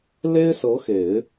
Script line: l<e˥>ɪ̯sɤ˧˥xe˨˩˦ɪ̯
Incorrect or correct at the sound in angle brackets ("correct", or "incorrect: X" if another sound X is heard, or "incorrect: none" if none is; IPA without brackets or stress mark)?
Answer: correct